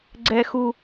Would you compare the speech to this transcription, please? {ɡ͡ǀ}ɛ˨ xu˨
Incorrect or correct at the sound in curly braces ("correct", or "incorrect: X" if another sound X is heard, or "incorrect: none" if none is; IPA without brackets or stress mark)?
correct